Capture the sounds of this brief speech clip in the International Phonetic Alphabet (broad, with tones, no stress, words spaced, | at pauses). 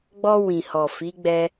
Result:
ɡ͡bɔ˧ wĩ˨hɔ˨ fi˨˦ɡ͡bɛ˧